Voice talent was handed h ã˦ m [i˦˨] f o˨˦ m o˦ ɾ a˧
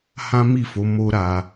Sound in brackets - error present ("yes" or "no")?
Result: no